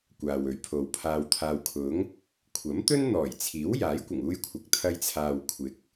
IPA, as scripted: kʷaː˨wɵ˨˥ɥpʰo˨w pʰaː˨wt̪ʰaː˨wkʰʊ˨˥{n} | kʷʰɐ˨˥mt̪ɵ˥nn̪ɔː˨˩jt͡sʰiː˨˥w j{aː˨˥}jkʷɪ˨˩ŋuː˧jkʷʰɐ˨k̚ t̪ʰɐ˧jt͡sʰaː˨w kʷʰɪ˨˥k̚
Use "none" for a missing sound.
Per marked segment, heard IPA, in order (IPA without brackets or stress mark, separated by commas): ŋ, aː˨˥